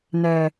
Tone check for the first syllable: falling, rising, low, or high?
high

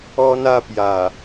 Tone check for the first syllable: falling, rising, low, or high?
high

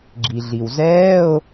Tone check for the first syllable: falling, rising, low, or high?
low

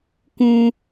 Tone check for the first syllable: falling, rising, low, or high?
high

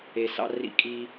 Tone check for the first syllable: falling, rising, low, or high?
low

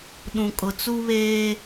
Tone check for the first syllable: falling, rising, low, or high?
low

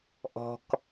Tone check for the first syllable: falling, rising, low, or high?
low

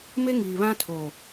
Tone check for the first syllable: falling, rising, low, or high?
high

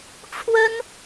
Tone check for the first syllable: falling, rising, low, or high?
high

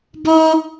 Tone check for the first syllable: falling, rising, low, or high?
high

